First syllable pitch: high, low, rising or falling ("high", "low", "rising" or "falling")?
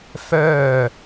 falling